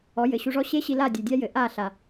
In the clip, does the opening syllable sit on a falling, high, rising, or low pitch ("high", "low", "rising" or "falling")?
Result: rising